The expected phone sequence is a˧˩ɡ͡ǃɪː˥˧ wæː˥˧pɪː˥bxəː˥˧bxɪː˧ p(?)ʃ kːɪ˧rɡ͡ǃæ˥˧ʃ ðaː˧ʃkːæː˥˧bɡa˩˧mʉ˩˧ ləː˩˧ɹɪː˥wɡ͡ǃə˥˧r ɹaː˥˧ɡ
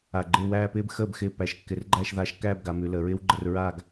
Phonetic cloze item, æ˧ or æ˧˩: æ˧˩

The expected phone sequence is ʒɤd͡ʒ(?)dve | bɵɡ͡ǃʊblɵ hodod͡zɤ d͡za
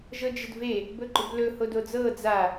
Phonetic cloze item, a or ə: ə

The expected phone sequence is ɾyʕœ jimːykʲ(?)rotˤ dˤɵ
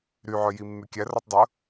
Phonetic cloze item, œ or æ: æ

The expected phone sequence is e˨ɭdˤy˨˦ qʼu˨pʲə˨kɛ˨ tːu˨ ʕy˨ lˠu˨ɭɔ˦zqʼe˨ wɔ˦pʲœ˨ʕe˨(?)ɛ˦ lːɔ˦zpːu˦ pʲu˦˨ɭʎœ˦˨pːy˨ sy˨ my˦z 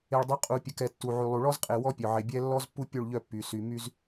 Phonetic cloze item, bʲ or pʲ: bʲ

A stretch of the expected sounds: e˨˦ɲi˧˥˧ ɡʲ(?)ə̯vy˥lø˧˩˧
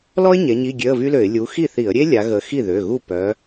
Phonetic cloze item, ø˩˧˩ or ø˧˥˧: ø˧˥˧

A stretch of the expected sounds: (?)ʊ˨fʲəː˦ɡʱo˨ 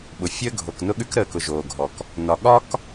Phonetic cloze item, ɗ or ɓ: ɓ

